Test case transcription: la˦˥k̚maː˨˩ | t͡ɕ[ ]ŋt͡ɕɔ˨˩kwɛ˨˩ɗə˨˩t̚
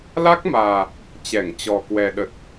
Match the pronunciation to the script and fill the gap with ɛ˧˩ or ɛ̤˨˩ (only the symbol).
ɛ˧˩